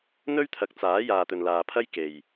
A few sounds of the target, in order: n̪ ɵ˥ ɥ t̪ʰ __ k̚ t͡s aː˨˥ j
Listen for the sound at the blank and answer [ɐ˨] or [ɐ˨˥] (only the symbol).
ɐ˨˥